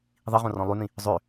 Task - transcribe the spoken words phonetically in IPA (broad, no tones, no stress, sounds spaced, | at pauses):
ðˤ i ʁ õ r ɔ̃ lˠ y n̪ ĩ | zˤ ø